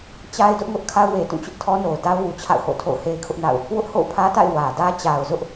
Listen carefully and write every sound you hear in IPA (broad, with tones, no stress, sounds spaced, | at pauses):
t͡ɕ a˦ ɪ̯ d ʊ˦ ʔ ŋ ʊ˦ ʔ kʰ a˦ ʊ̯ w e˨ t ũ˦˨ t͡ɕ ʊ˦ ʔ tʰ ɔ˦ n o˨ ʊ̯ d a˦ ʊ̯ w u˨ t͡ɕʰ a̰˦˨ ʊ̯ h o̰˦˨ tʰ o̰˦˨ ʊ̯ h e˦ ɪ̯ kʰ ʊ˦ ʔ n a̰˦˨ ʊ̯ | w ʊ˦ ʔ h o̰˦˨ ʊ̯ pʰ ä˦ t a̰˦˨ ɪ̯ w ä˨ d ä˦ t͡ɕ a˨ ʊ̯ z ʊ˦ ʔ